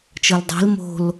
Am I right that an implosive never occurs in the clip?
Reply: yes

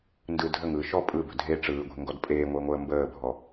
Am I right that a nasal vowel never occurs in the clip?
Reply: yes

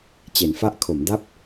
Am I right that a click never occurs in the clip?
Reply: yes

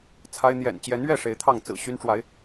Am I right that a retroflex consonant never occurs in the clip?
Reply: no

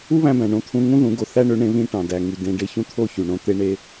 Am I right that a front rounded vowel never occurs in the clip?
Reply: no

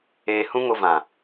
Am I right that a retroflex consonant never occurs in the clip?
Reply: yes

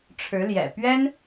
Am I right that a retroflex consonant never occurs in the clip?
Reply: no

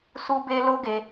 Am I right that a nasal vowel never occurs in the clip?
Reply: yes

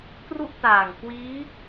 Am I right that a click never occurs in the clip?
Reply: yes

